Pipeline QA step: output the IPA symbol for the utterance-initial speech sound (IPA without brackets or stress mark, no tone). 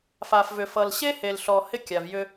f